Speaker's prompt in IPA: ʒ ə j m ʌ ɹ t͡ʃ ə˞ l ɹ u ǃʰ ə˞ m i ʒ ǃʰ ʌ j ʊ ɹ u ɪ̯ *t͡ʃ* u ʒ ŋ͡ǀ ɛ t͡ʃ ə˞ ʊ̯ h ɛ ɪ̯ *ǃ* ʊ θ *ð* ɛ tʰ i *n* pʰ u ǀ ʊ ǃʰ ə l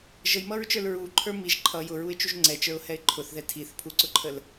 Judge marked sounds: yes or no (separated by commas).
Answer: yes, no, yes, no